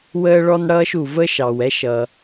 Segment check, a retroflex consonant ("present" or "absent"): present